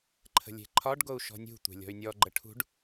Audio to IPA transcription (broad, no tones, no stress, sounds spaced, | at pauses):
ǃʰ ə̤ lʲ e̤ ǃʰ ɒ ɖ ɡ o u̯ ʃ ɔ̤ nʲ ṳ tʷ e̤ lʲ ɔ̤ y̯ nʲ ɔ ɡ͡ǃ ə ʈʰ ṳ ɖ